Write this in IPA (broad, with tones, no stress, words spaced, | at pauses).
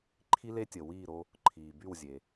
ǃʰi˥le˥tʲə˩ wiː˥˩ɾo˧ | ǃʰiː˩by˥˩wzʲe˩